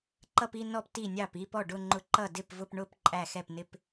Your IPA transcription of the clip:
ǃ ʌ˥˧ p i˥˧ n ɔ˥˩ p t i˥˩ nʲ ɑ˥˩ p i˥˧ p ɔ˥˩ ɖ ʊ˥˧ ŋ͡ǃ ʊ˥˩ ǃ ʌ˥˩ d ɪ˥˩ p v ʊ˥˧ p ɳ ʊ˥˧ p ǃʼ æ˥˩ x ɛ˥˩ p n ɪ˥˧ p

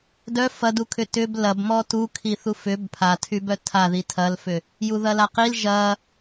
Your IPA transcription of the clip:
d œ f ɐ d u kʰ ʏ t ʏ b l ɐ b m ɔ t u kʰ i θ u f ʏ b pʰ a tʰ y b œ tʰ a ð i tʰ ɐ l f ʏ | j u ð ɐ l a q i l ʒ ɐ

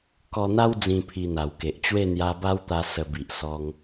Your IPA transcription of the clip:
k ɔ˧ n̪ a˦ w d͡z ĩ˥˧ pʰ i˧ n̪ a˨˩ w k e˨ ʔ t͡ɕ w e˥˧ n̪ j a˧ b a˦ w t̪ a˧ s ə˧ b i˨ ʔ s ɔ˧ ŋ

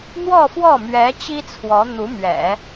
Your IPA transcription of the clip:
n̪ w ɔ˥˧ f w ɔ˥˩ m ɥ ɛ˧˥ t͡ɕ i˥ t͡sʰ w ɔ˧˥ n̪ u˧˥ m ɥ ɛ̰˨˩˦

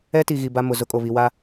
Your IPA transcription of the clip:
ɛ˦ t i˨ ɣ i˨ b a˦ m ʊ˨ z ʊ˦ kʼ o˨ β i˨ w a˦

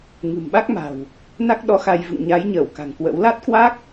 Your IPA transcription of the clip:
ŋ ɨ̤˨˩ m ɓ a˦˥ k̚ m a̤˨˩ w | n a˦˥ k̚ ɗ ɔ˨˦ x a˧ j v ɨ̰˧˨ ŋ ɲ a˨˦ j ɲ əː˧˩ w k a̤˨˩ ŋ k w ə̰˧˥ w l a˦˥ t̚ k w a˦˥ k̚

